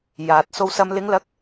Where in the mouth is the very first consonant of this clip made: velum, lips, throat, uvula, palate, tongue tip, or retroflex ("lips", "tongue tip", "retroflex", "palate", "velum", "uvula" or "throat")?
palate